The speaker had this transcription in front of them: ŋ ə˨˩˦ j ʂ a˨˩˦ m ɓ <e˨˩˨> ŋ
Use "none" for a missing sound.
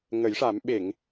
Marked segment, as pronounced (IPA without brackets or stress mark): e˨˩˨